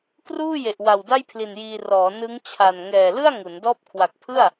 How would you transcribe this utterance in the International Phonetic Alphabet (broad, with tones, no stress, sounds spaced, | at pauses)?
k r uː˥˩ j e˨˩ ʔ w a˨˩ w d a˥˩ j pʰ l i˨˩ n j iː˧ r ɔː˩˦ n ɯ˦˥ ŋ t͡ɕʰ a˨˩ n ŋ ɛː˨˩ l ɯ˥˩ a̯ ŋ u˩˦ n d ɔː˥˩ p̚ kʰ w a˨˩ k̚ pʰ ɯ˥˩ a̯